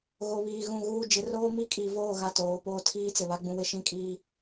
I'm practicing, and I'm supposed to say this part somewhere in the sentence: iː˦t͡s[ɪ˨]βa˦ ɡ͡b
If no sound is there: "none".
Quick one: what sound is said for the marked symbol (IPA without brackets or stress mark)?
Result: ɪ˨